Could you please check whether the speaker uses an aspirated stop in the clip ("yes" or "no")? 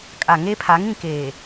yes